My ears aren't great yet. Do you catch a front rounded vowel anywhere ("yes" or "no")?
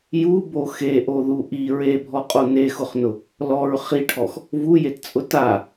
no